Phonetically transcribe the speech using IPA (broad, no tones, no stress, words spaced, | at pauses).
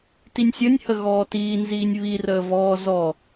tinʲsʲənʲhə ɣɔːtiːnziːnʲ βirəː vɔː zɔ